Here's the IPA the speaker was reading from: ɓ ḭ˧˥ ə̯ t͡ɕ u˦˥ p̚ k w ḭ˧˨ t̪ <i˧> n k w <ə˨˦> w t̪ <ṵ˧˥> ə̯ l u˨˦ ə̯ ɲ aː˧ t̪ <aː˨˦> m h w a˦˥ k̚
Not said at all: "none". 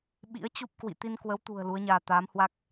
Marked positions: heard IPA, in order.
i˧, ə˨˦, ṳ˨˩, aː˨˦

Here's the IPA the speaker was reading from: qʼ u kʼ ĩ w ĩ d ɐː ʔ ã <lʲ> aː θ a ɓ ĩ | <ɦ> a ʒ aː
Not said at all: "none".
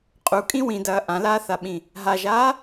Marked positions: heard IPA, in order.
l, ɦ

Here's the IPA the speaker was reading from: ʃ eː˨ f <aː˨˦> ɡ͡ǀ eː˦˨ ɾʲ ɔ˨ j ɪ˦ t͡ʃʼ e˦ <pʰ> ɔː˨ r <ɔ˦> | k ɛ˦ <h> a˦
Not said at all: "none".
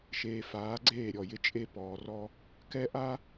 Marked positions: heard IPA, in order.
aː˨˦, p, ɔ˦, ʔ

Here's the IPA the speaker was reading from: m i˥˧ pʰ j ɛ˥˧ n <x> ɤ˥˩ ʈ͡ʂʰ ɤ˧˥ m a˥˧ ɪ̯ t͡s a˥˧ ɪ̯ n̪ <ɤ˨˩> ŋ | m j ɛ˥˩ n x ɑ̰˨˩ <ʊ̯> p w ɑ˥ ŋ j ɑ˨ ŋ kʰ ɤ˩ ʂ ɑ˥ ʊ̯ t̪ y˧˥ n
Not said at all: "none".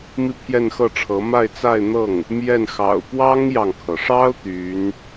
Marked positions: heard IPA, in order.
x, ɤ˥˩, ʊ̯

